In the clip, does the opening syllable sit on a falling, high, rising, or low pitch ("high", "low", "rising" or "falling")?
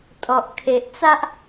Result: low